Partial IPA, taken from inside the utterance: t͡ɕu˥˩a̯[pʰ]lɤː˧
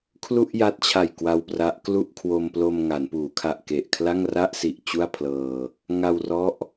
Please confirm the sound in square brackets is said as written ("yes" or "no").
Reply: yes